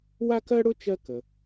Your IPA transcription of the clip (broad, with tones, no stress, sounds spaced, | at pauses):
w a˥ k ɜ˥ ɽ ʊ˥ t͡ʃ ɜ˥ k ə˩